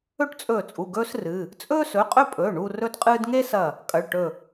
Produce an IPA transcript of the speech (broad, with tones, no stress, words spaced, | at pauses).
ɵ˥˧ʈt͡sʼɵː˧˩t͡sʼu˩˧˩ ɡɵː˥srɨ˩˧˩ | t͡sʼɵː˥sɵ˩˧˩qʼɵ˥˧pʼɵː˩˧˩ ɳu˥˧ rɵ˥dqʼɨː˥d ŋe˥sɐ˧˩ | kʼɐ˩˧˩ɭʈɵ˧˩